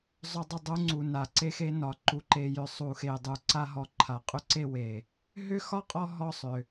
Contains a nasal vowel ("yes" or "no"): no